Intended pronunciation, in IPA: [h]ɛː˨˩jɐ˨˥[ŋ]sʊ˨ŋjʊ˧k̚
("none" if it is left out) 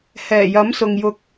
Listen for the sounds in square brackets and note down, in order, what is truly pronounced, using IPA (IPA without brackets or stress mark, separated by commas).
h, m